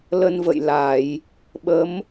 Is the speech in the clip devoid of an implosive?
no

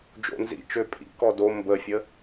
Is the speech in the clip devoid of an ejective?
no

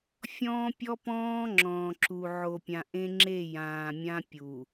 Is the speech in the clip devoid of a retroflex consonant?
yes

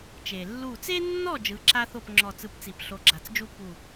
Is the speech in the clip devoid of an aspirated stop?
yes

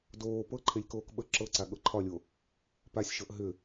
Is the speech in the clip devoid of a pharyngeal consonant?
yes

